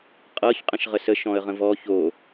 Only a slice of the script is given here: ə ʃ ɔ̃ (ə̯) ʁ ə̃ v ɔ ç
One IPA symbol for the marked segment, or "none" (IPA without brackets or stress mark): ə̯